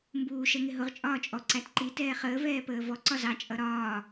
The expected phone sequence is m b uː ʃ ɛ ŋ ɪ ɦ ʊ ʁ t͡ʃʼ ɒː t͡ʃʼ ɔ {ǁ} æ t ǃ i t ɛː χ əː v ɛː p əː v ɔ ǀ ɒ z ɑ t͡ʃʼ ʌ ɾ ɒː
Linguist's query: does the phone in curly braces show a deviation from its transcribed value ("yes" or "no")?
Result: yes